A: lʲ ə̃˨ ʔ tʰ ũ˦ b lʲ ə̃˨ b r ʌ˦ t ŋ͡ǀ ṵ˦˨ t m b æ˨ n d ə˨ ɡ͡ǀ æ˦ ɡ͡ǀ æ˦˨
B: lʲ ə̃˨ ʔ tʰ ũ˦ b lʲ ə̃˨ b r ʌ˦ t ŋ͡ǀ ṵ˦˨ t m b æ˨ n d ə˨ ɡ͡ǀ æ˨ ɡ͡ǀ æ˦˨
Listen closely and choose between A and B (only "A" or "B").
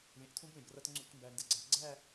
B